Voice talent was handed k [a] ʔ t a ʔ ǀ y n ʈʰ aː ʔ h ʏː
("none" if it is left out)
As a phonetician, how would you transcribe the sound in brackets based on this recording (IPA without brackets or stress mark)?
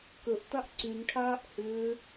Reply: ə